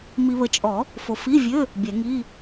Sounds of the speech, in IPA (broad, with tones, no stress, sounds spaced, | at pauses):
m i˨ β ə˨ t͡ʃʼ ɔ˨˩˦ | f o˨ f i˧˥˧ vʲ ø˧˥˧ | bʲ ɛ˨˩˦ ŋ i˧˥˧